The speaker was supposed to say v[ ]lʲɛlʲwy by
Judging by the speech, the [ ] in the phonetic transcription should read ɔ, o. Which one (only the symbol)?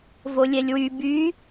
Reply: o